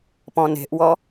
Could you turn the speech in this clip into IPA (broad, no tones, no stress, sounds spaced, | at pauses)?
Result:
p ɔ̃ n e̤ ʔ w ɔ